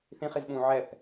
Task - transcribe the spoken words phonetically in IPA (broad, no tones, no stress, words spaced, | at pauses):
θĩχizɓũː ʕɛθ